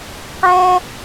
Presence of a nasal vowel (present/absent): present